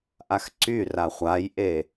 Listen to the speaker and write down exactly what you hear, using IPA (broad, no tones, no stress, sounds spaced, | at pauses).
ʔ a x ǀ y r a χʷ a j ʔ e